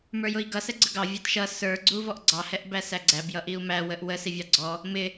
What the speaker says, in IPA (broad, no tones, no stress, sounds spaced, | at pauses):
m ə˞ j ʊ i̯ ɡ ʌ s ɛ ɡ͡ǀ ə ɡ ɑ vʲ ɑ t ʃ ʌ s ə˞ ɡ͡ǀ u v ɔ ʔ ɡ͡ǀ ɑ h ɛ ʔ b æ s æ ɡ͡ǀ æ b j ʌ ʔ i u̯ m æ w ə ʔ w ə s i vʲ ɑ ɡ͡ǀ ɔ | m ɪ